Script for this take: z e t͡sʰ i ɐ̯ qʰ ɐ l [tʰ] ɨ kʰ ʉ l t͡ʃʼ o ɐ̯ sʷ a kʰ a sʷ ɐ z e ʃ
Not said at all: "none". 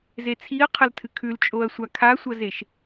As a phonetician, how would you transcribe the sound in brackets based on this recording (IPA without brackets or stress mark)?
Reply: tʰ